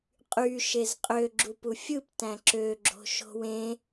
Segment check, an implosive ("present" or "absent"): absent